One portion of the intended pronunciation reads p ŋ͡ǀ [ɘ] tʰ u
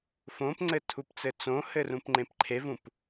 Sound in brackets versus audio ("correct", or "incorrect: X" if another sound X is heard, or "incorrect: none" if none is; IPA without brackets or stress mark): correct